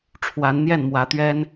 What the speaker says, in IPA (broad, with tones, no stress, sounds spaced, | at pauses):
ʈ͡ʂʰ w a˨˦ n n̪ j ɛ˥˨ n m w ä˨˦ t̪ ɥ ɛ˦ n